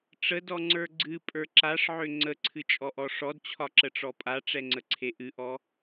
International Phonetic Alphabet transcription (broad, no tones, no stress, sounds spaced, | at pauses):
ʈ͡ʂ ə d ɔ ŋ͡ǀ ə˞ ɡ͡ǀ ɨ pʼ ə˞ ǁ a ʂ ʕ ø ŋ͡ǀ ə ǀʰ ɨ t͡ʃʼ ɔ ʔ ɔ ʂ ɔ d t͡ɕʰ ɒ ǁ ə ʈ͡ʂ ɔ pʼ a ʈ͡ʂ ɛ ŋ͡ǀ ə ǀʰ e ʔ ɨ ʔ ɔ